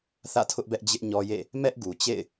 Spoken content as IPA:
θ ä̰˦˨ tʰ ʊ˦ ʔ b ɛ˦ ʔ d͡ʑ ɪ˦ ʔ ɲ ɔ˦ j ḛ˦˨ | m ɛ˦ ʔ ɡ u˨ t͡ɕ ḛ˦˨ ɪ̯

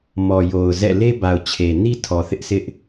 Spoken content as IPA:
m ɔ˨ j o˨ ʊ̯ z ɛ̰˦˨ l e˦ b a˨ ʊ̯ t͡ɕʰ e˨ n i˦ tʰ ɔ˨ θ ɪ˦ ʔ sʰ ɪ˦ ʔ

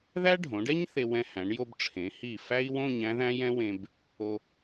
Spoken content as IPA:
ð æ˥ ɖʱ õ˩˧ ɖ ɛ˥ ɲ θ e˧ w ɛ̃˧ h æ̃˩˧ ɳ j o˧ b ʈ͡ʂʰ ẽ˩˧ h i˧˩ f æ˥ i̯ w õ˥˧ ɲ æ̃˥ ð æ̃˥ j ɛ̃˥ w ẽ˧ b | o˧

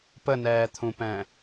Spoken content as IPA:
p ə n ɛː t̪ʰ ũ p ɛ̃

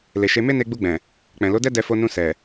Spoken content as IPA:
l e˨ ʃ e˧ m e˦ n e˧ ɡ͡b u˧ ɡ͡b ɛ̃˨ | k͡p ɛ̃˨ l o˨˦ d ɛ˦ d ɛ˧ f o˧ n ũ˧ s ɛ˨

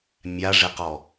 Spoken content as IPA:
mʲ a ʐ ɪ q ɔ

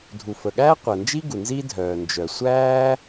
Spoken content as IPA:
dʱ u˩ f ə˩ ɠ æː˥ qʷ əː˩ n d͡ʒ i˥ ɡ u˩ n z i˥ dʱ œː˩ n d͡ʒ œ˩ sʷ æː˥

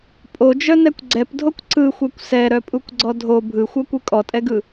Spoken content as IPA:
pʼ o d͡ʒ œ n ɛ kʷ ɡ͡ǀ ɛ p dʱ o kʷ ǀ ɯ xʷ ɛ kʷ s ɛ ɾ œ pʼ u kʷ ɡ͡ǀ ɔ dʱ o bʱ ɯ xʷ œ kʷ ɯ kʼ ɔ tʼ ɛ ɡ ɯ

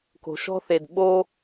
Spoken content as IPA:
k o̤˨ ʃ ɔ̤˥ θ e˨ d ɓ o˦

